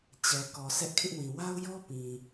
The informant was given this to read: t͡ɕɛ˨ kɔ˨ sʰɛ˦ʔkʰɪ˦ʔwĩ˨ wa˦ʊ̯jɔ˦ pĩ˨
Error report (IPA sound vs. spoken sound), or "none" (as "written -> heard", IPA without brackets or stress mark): none